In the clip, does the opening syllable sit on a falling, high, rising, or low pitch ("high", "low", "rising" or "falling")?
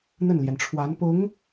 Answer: falling